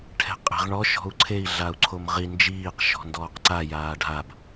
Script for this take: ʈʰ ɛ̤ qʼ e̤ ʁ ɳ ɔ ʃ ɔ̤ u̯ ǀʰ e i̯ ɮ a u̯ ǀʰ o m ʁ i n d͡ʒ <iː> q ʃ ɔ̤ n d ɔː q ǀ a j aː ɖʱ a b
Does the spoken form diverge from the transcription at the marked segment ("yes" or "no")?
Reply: no